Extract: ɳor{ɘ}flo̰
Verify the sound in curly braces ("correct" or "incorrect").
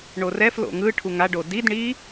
incorrect